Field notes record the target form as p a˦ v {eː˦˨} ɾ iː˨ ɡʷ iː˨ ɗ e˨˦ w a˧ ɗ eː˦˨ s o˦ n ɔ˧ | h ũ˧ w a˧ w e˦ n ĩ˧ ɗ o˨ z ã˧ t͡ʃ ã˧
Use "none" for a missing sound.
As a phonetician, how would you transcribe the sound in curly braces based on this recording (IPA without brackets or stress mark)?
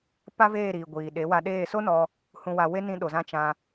eː˦˨